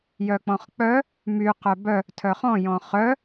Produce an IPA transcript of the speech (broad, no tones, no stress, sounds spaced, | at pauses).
j œ k͡p ɔ̃ χ k͡p œ | m y q œ b œ | tʰ œ χ ɔ̃ j ɔ̃ χ œ